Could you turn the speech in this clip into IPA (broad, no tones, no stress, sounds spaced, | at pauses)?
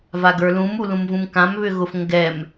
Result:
v a ɡ ə˞ l ũ m u l ũ m v ũ m k ã m β ʏ ɣ ʊ f ŋ ɡ ɛ m